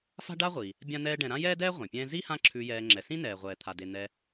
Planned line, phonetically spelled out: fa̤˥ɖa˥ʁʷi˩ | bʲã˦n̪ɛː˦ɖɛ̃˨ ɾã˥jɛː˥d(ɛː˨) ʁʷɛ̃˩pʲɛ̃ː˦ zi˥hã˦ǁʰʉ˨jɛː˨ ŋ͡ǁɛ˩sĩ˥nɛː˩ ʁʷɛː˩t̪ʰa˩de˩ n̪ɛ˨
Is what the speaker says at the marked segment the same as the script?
no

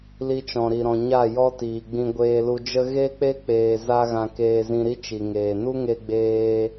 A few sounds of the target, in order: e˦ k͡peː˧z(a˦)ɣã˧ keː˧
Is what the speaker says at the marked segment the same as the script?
yes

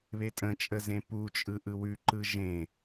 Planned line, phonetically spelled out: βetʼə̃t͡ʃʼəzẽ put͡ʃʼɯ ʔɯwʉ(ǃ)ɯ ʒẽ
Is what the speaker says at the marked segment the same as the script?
yes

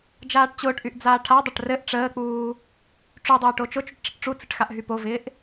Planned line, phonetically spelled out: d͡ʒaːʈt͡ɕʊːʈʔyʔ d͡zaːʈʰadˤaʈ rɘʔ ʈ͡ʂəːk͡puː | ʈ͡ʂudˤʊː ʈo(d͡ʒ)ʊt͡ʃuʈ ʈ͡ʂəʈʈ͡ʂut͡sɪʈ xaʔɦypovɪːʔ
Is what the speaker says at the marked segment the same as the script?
no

